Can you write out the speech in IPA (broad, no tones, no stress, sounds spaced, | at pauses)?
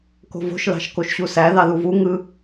k o̤ v o̤ ʃ l ɑ̤ ʃ k o ʃ ɕ u s æ ð ɑ ð u v u ŋ ɯ